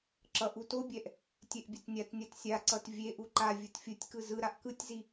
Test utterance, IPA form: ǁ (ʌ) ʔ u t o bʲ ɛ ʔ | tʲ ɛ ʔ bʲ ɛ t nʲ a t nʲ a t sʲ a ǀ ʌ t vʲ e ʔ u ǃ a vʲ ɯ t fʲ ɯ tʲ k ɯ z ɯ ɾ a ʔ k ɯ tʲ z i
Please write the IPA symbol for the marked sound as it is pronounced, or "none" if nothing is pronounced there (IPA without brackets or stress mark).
ʌ